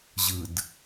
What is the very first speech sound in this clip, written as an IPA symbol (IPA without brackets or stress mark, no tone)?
ʑ